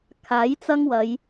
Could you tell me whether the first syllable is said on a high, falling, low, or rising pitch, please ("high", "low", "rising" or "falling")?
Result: rising